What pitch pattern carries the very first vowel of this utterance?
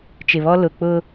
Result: low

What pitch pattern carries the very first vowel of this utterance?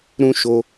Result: high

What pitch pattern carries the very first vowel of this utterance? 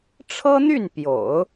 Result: high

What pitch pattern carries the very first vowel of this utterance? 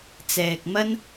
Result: low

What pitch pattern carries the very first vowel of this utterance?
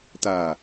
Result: low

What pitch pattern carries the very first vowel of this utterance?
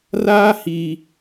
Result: high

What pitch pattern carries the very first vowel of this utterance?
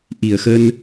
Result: low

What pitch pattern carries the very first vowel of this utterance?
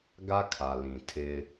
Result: high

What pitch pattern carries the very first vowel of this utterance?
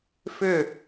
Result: falling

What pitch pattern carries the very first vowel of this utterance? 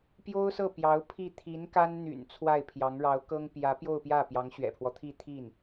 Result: high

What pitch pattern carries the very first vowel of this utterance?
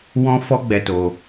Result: high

